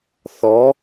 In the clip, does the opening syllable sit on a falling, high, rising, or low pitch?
rising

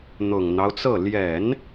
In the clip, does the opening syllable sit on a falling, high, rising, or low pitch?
low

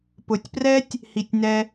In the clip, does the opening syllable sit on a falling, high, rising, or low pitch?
low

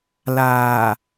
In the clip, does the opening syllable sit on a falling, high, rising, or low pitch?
low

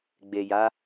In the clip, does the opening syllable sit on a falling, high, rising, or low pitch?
low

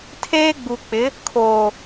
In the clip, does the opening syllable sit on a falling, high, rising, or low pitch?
high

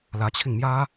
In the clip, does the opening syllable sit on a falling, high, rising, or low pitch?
rising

